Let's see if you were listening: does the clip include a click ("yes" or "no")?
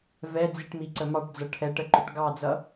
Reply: yes